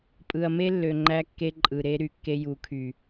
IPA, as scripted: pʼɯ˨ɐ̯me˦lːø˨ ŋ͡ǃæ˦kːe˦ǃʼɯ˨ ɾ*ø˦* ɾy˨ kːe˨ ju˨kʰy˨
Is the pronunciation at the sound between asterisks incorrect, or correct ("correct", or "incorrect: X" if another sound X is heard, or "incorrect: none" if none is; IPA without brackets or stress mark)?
incorrect: e˦